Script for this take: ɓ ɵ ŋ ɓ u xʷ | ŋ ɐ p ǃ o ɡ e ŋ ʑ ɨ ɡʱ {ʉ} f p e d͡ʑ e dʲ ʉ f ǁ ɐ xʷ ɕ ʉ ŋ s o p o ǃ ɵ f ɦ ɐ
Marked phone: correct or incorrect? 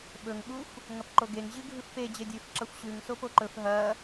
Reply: incorrect